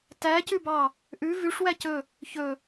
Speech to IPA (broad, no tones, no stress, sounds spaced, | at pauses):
t æ c ʉ b ɑ | ʔ ʉ v ʉ ʂ w æ c ɵ | ç ɵ